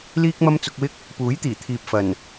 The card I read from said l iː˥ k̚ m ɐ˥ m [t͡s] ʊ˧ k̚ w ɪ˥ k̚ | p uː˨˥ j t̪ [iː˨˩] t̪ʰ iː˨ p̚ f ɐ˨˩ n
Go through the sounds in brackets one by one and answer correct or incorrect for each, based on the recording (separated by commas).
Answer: correct, correct